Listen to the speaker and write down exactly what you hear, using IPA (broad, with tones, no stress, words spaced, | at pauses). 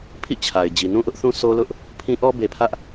pʰḭ˦˨t͡ɕʰa˨ɪ̯ d͡ʑi˨nũ˦ʔʊ˦ʔθũ˦ sʰo˦lʊ˦ʔ | pʰĩ˦ʔɔ˦ be˨pʰä˦ʔ